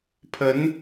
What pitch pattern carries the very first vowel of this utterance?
rising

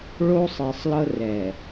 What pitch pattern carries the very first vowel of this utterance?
high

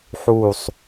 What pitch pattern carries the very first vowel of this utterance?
falling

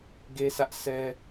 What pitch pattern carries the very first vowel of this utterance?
high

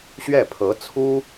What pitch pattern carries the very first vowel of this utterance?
falling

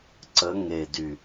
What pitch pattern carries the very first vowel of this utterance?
rising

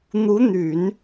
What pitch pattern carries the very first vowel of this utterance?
rising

